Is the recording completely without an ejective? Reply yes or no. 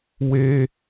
yes